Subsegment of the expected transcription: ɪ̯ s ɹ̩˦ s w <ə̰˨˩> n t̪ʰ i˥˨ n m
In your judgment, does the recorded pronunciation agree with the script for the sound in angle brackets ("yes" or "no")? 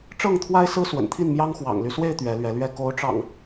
yes